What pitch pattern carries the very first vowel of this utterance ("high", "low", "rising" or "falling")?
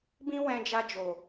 high